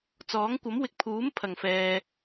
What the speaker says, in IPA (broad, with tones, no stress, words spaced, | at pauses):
t͡sɔː˨˥ŋ kʷɐ˨˥mwɪ˨k̚pʰuː˨˥m pʰɐ˨˩ŋfɛː˨